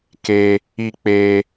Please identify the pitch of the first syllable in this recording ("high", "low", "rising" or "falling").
high